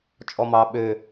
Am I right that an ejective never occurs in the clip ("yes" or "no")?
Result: no